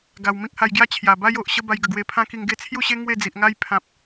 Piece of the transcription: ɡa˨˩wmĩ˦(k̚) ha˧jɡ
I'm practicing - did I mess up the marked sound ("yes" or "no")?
no